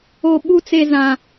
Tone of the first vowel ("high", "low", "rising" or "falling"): high